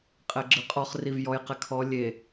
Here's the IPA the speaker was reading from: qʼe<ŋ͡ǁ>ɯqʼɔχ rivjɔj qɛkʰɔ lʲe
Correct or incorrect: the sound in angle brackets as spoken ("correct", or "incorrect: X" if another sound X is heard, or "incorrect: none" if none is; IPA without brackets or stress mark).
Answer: incorrect: ɡ͡ǁ